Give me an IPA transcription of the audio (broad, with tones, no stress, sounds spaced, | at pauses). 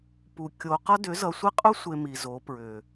p u˨ kʲ o˨ q ʌ˦ d ʏ˨˦ z ʌ˨ sʷ i˦ qʼ u˦ sʷ e˨ m i˨ z o˨˦ p ɹ ʏ˨